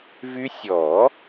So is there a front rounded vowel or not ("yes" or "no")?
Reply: yes